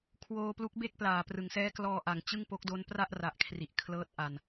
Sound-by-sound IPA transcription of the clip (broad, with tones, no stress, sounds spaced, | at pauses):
kʰ w oː˧ p l u˦˥ k̚ b e˥˩ k̚ p l aː˨˩ p r ɯ˩˦ ŋ s ɛː˦˥ k l ɔː˧ ʔ a˨˩ ŋ t͡ɕ ɯ˥˩ ŋ p o˦˥ k̚ d o˦˥ n p r a˥˩ ʔ r a˨˩ ʔ kʰ r i˨˩ ʔ kʰ l ɤː˦˥ t̚ ʔ a˨˩ n